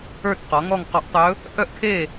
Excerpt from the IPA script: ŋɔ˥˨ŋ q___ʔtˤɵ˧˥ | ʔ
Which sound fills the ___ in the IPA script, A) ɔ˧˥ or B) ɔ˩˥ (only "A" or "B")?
A